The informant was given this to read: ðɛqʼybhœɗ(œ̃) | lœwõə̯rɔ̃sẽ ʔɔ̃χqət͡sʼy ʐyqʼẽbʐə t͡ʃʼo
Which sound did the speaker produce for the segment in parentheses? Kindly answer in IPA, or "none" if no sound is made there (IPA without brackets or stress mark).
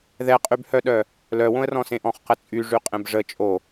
œ